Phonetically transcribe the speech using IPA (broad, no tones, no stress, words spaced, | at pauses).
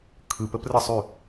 kʰɯpəprəsˤʉ